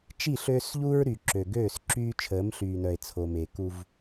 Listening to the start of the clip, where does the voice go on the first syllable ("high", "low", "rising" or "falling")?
falling